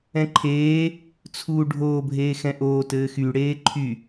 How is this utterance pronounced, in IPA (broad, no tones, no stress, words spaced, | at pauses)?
ɛ̃ǃʰeː | t͡sʰuːɖʱoːbʱeː xɛ̃ʔoːtɘː xy ɽeːǃʰy